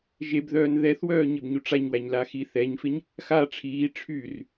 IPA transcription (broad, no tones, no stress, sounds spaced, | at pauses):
ʒ e b ð œː n ð ɛ θ w œː ɲ ɪ b ɲ u ʈ͡ʂ a ɲ w æ ɲ l a x i θ ɛ ɲ f ɪ ɲ | x a ʈ͡ʂʰ iː ʈ͡ʂʰ y r